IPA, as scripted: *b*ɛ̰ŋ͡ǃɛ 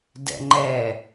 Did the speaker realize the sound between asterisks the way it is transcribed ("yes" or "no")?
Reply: no